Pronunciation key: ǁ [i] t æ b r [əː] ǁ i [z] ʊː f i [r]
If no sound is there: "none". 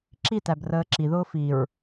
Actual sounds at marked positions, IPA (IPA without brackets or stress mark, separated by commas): i, əː, ð, ɹ